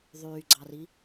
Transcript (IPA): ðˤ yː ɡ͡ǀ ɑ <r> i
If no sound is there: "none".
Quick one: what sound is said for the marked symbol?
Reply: r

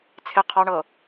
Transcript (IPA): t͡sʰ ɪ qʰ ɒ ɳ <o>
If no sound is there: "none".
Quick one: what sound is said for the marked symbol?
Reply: ɤ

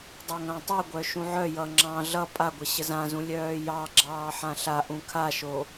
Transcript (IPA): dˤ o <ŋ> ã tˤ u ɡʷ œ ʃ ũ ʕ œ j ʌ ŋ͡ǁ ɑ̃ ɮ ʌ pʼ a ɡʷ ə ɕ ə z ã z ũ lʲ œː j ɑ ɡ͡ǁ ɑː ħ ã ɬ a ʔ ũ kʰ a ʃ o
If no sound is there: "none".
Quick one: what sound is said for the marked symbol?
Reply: ŋ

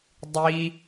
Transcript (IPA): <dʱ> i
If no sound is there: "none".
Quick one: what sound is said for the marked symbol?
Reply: dˤ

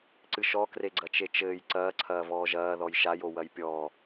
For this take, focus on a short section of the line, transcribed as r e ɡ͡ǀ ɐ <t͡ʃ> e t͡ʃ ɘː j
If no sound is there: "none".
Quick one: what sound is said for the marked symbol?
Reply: t͡ʃ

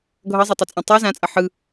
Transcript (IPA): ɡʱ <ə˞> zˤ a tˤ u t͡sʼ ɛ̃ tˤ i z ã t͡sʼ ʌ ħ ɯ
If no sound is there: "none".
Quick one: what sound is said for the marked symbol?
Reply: ʌ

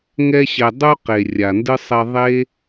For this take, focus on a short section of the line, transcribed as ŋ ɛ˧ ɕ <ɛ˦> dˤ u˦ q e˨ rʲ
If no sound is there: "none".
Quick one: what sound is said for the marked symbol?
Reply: ɛ˨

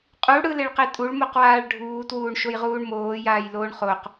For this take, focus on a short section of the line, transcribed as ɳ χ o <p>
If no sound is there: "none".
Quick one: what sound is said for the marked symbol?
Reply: q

